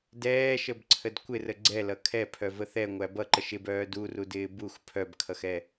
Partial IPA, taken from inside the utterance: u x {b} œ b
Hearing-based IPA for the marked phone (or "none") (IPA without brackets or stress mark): pʰ